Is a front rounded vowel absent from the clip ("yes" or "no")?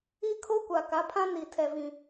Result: yes